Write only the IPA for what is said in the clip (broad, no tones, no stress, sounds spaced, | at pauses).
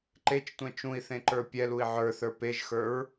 ǃ e t͡ʃ tʷ ɛ̃ t͡ʃ ũ i̯ θ ẽ ǃ ə˞ pʲ ɛ l u i̯ ʕ ə˞ θ ə˞ p e ʒ x ə˞ ɹ